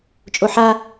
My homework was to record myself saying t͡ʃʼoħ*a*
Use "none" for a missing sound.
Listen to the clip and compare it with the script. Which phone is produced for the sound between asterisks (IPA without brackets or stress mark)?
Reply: a